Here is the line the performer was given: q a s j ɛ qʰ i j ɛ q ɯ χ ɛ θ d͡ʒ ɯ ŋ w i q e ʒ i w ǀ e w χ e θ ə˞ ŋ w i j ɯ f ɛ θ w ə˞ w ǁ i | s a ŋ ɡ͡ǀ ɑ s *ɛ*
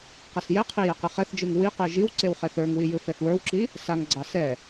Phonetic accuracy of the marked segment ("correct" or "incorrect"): correct